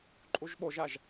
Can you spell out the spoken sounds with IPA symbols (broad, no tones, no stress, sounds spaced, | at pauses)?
ǃʼ u ʒ ɓ o ʒ a ʒ